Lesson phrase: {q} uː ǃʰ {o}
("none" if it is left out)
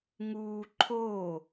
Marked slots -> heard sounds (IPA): ŋ, oː

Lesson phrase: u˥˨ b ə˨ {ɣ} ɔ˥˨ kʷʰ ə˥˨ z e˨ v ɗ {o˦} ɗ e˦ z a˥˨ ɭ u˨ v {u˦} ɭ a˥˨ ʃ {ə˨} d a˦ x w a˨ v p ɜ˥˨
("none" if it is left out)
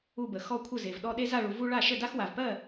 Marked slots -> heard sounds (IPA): x, ɔ˦, u˦, ə˥˨

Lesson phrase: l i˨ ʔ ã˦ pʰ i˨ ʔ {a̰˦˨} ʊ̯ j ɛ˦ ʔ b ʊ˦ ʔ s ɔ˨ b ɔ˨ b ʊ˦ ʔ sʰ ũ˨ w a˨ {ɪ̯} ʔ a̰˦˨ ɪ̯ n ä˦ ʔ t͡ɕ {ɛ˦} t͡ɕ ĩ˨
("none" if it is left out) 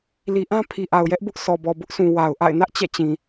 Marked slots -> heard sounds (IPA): a˨, ʊ̯, ɛ̰˦˨

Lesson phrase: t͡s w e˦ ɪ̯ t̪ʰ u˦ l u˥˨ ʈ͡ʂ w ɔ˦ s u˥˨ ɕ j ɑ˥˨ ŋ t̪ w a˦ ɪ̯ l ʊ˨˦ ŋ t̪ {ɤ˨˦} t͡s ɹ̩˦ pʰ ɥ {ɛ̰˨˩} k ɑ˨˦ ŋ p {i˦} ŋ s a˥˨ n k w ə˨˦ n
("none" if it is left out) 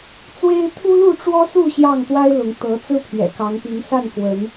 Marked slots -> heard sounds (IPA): ɤ˨˦, ɛ̰˨˩, i˨˦

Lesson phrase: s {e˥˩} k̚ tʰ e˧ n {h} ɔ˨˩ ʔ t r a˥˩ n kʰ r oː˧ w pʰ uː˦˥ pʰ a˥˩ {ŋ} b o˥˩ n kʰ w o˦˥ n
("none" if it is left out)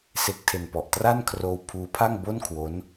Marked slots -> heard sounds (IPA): e˦˥, p, ŋ

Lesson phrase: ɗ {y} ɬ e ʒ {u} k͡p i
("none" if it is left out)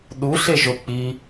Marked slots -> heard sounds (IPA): u, o

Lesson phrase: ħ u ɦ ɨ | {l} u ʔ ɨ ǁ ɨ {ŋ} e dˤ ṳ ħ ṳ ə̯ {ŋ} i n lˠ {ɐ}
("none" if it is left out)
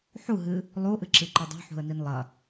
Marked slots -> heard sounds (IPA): lˠ, ǃ, n, ɐ

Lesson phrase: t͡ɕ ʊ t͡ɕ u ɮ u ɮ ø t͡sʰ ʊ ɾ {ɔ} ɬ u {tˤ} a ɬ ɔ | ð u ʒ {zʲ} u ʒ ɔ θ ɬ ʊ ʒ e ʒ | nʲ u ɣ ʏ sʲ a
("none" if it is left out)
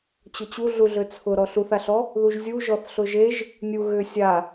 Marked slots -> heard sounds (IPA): ɔ, θ, zʲ

